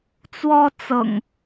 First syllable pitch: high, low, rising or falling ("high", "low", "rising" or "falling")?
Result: high